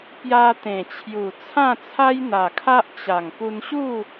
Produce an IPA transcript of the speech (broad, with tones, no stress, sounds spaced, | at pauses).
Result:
p j a˧ t̪ ẽ˨˩ t͡ɕʰ j u˨˩ t͡sʰ ã˥˧ t͡sʰ a˦ j n̪ a˨˩ kʰ a˦ ʔ t͡ɕ a˨˩ ŋ p u˧ n ɕ u˥˧